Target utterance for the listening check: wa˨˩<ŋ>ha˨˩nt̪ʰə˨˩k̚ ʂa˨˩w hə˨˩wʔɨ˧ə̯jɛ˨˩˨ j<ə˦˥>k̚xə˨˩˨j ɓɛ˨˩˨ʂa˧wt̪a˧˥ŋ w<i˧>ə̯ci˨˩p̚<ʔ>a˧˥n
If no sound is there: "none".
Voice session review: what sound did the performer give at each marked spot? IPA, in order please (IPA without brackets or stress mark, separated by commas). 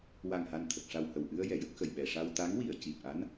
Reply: ŋ, ə˦˥, i˨˩˨, ʔ